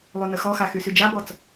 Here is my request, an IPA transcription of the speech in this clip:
lˠ y n ə x ɔ x a x y s y d͡ʒ a b ɔ t͡s

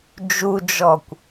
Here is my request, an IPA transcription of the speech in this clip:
d͡ʒ u d͡ʒ ɔ kʷ

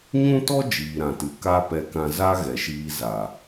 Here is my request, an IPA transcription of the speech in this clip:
ɲ ũ˦ t ɔ˦ d͡ʒ iː˨ ɾ ã˨ t ɨ˨ k a˧ p ɛ˧ k ã˧ z a˦ ɣ ɛ˨ ʃ iː˧ z a˨

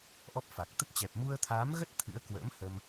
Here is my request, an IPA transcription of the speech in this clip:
ʔ ɔ˦˥ p̚ f a˨˩ k̚ t̪ ə˦˥ t̚ t͡ɕ ɛ˨˩ p̚ m u˧ ə̯ t̪ʰ aː˨˦ m ɣ ə˦˥ t̚ t̪ʰ ɨ̰˧˥ ə̯ k w ə̰ː˧˥ m h ə˧ m

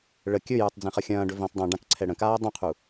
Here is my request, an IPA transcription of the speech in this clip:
ɭ ə kʲ ɵ j ə˞ tˤ d͡z ĩ χ ə xʲ ɐ̃ː ɖ ɵ v ĩ tˤ dˤ ĩ ɖ ã k ǀʰ ɛ ɽ ə̃ k aː dˤ ũ qʰ u

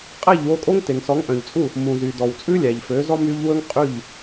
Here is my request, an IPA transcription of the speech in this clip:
qʼ æ˥˩ ʎ w o˧ kʼ o˥ ŋ t e˩ ŋ s ɔ˩˥ ŋ ʔ œ̃˩ ʎ t͡sʼ u˥˩ | m ũ˩ z y˩ d ɔ˩ w t͡sʼ ʉ˥ lʲ æ˩ ʎ f ø˩˥ z ɔ˥ m y˥ ʎ w ɵ˥ ŋ qʼ ʉ˥˩ ʎ

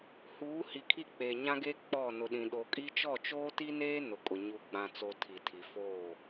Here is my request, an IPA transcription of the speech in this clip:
h uː˨˦ h i˨ kʰ i˦˨ k͡p eː˨ ɲ ã˦ ɡ eː˦ k͡p ɔ˦˨ n ʊ˨ ɗ ĩ˨ ɗ o˨ kʼ i˦ t͡ʃ ɔ˦˨ t͡ʃ oː˦ t i˦ n eː˦ n ʊ˨ kʼ ʊ˨ ɲ u˨ ɡ͡b ã˨ t͡s o˨ tʰ i˨ tʰ i˨ f oː˦˨

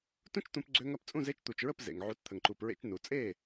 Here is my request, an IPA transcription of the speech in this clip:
t ũ˥ t͡ʃ t̪ ũ˧ p ɡ͡ǀ ø˧ ŋ ɐ˥˩ p t͡sʼ ũ˥˩ z e˥ t͡ʃ t̪ u˩ t͡ʃ ɹ ə˥˩ p z ḛ˩ ŋ ʕ u˩˥ t t̪ʰ ə˩ ŋ ǃ u˩ p ɹ ḛ˧ t͡ʃ n u˩ t͡sʼ e˥˩

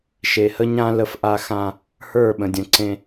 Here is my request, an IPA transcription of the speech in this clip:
ʃ e˨ h ə˦ ɲ ã˦ l ə˦ f ʔ a˦ x ã˦ | h ə˞˦˨ ɓ ə̃˨ dʲ ə̃˨ ǀ ẽ˦

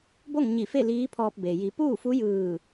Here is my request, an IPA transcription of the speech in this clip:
b o˥˨ ŋ ɲ i˧˩ f e˥˨ l iː˧˥ pʰ ɔː˧ p̚ b e˩ j i˩˧ p uː˥˨ f u˧˥ j ɯː˧˩

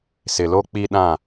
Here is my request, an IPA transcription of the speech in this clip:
s ɪ˨ l o˦ k͡p i˦ ɗ ã˦˨

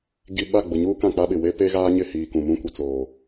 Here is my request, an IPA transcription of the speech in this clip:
ɡ i˨ ɓ a˦˨ ɡ͡b ʊ˨ ɲ uː˦ k ã˦˨ k͡p a˦ ɓ ɪ˨ w e˦ p e˦ ɣ aː˦ ɲ ɪ˦˨ h iː˨ k ũ˨ m ũ˦ kʷ i˨ t͡s oː˨

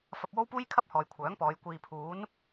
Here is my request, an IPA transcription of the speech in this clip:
f ɐ˧ p̚ w o˥ w p uː˥ j kʰ ɐ˥ p̚ h ɔː˨ j kʷʰ œː˨˥ ŋ p ɔː˨˧ j kʷ iː˨ pʰ uː˨˥ n

